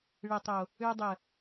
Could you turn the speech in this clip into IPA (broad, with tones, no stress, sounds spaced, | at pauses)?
ɭ ɘ˨ tˤ o˨ | ø˧ dˤ ə˨